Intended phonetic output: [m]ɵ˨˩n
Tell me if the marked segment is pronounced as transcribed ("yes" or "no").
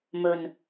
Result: yes